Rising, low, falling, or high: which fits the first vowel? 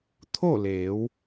falling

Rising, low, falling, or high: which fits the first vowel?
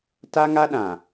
high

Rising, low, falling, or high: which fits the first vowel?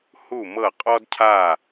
falling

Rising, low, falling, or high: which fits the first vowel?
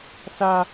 high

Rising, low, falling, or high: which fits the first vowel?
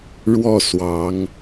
falling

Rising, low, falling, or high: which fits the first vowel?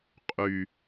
low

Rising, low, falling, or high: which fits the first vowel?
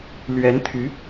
rising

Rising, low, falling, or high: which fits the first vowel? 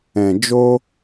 low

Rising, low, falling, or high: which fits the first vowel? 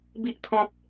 low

